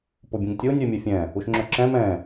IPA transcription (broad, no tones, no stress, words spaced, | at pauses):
pobʲũŋtʲo nʲœmʲɛfʲɛ̃ː | uʃŋ͡ǁœǁɛ̃ mɛ̃ː